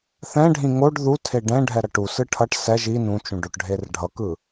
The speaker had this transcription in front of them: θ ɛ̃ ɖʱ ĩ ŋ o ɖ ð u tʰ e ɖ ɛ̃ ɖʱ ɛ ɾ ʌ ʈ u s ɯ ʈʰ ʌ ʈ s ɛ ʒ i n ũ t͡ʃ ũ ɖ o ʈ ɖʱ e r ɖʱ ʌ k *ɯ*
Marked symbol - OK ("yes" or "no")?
yes